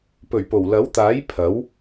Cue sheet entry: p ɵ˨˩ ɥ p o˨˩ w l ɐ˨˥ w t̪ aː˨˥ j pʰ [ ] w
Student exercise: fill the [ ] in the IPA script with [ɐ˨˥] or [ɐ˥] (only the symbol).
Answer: ɐ˨˥